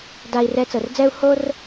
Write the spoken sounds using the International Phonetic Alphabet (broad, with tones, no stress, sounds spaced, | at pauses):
d a˧ i̯ r ɛ˧˥ t͡s ɤ˩˧ r d͡z ɛ˥ u̯ h o˥ r